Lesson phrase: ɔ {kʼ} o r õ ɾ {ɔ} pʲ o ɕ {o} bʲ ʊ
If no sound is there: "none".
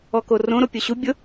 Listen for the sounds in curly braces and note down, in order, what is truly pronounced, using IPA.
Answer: k, o, u

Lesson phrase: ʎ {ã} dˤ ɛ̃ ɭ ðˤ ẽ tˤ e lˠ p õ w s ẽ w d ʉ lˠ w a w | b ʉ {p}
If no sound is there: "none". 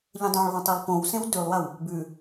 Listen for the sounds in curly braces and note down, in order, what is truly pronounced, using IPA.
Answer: ə̃, none

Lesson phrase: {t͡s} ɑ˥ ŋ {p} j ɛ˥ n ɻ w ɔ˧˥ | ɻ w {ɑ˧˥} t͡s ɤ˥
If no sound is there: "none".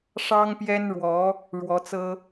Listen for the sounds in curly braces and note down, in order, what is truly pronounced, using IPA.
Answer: ʂ, p, ɔ˧˥

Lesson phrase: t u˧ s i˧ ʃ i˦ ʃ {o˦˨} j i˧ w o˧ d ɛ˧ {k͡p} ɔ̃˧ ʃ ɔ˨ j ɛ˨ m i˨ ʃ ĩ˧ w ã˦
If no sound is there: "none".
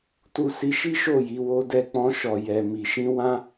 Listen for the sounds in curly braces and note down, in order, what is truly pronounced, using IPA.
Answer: o˦˨, k͡p

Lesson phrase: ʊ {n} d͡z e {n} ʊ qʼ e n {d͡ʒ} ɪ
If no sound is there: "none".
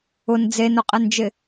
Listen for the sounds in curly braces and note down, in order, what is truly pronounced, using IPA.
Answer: n, n, d͡ʒ

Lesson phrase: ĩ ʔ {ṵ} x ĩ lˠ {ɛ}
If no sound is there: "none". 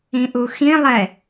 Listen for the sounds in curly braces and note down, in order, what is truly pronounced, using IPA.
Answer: u, ɛ

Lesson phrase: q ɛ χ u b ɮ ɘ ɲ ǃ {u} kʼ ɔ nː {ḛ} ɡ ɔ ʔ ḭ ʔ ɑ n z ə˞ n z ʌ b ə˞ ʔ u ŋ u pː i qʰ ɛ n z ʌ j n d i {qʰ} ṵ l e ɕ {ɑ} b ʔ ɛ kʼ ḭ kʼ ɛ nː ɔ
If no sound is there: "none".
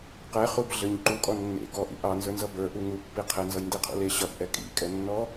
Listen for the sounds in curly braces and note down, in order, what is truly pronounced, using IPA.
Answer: u, ḛ, qʰ, ʌ

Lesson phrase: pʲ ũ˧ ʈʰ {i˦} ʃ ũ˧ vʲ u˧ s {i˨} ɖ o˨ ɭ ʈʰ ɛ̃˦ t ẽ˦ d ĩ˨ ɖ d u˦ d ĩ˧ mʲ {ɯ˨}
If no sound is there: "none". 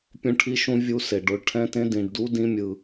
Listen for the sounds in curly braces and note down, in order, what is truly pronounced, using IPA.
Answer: i˧, e˨, ɯ˨

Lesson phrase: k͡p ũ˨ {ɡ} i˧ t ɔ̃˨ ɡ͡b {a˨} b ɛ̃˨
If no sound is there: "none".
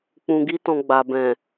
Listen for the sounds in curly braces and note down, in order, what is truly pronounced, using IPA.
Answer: ɡ, a˨

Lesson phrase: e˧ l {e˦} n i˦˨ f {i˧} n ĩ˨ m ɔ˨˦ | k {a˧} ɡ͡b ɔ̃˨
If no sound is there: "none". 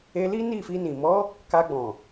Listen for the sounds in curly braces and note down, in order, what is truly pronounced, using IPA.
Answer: i˦, i˧, a˧

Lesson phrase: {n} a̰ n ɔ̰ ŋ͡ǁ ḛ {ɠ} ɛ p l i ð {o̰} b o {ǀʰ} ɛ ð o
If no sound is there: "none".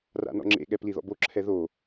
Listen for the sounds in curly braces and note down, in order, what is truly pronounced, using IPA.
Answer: r, ɠ, ɔ̰, ǁʰ

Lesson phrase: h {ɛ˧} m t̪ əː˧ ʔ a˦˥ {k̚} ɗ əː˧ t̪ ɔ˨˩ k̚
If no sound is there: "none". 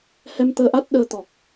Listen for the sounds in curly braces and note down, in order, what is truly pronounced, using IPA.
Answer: ɛ˧, t̚

